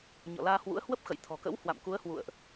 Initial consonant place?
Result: palatal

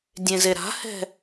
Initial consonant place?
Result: alveolar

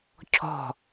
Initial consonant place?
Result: palatal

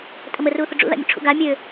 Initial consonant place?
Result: alveolar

